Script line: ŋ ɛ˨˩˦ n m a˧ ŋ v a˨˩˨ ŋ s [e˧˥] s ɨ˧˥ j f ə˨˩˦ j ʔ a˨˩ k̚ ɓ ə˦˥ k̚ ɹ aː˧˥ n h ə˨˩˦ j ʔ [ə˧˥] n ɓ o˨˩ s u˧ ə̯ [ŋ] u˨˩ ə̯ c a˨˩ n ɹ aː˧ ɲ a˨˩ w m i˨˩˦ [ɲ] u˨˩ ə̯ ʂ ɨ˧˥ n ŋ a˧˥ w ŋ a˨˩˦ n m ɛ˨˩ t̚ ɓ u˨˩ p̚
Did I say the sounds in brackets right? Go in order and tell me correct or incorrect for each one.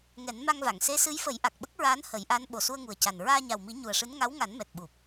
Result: correct, incorrect: a˧˥, correct, correct

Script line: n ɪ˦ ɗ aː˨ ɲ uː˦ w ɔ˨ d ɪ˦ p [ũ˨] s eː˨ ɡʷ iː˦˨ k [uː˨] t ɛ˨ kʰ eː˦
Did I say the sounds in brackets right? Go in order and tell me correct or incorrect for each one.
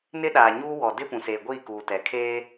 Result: correct, correct

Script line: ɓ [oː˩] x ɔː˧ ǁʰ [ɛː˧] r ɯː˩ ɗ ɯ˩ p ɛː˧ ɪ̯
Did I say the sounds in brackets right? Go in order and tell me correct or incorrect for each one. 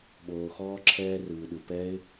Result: correct, correct

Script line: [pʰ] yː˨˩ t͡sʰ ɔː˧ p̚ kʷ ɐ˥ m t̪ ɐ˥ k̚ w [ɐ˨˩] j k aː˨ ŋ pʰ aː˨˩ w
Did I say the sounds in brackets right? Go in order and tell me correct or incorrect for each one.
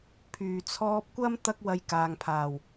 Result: correct, incorrect: ɐ˧

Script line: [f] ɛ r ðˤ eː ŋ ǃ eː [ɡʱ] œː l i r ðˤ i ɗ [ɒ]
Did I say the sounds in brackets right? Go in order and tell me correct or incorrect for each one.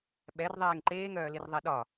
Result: incorrect: ɓ, incorrect: ŋ, correct

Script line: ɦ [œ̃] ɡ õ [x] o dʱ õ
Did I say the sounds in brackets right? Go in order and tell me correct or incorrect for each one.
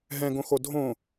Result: incorrect: ɛ̃, correct

